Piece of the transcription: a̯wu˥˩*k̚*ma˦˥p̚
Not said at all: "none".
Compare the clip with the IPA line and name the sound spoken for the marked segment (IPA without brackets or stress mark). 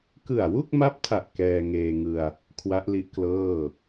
k̚